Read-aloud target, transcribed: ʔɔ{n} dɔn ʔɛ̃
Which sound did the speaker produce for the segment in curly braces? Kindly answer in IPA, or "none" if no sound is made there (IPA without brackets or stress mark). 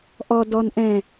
none